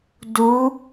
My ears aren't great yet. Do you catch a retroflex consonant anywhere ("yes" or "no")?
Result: no